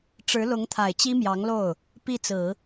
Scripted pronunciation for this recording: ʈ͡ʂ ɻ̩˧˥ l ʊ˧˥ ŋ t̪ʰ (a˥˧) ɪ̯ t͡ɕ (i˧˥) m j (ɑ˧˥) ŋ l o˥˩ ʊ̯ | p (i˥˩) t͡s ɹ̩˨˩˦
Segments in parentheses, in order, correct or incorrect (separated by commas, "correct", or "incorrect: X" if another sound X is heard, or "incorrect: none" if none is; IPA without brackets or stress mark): incorrect: a˨˩, incorrect: i˥, correct, correct